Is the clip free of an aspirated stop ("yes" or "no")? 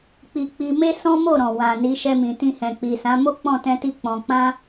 yes